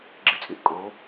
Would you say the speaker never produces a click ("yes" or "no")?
no